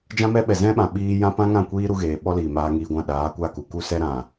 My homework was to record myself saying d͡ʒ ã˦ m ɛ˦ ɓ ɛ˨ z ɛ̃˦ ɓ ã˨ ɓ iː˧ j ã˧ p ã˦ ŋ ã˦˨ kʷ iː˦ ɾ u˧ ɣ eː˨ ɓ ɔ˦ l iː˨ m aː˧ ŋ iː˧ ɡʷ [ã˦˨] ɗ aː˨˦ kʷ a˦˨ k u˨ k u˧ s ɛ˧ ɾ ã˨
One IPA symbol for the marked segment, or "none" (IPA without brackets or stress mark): ã˦˨